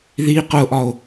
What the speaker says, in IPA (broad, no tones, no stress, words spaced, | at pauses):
ði qʊʔɒo̯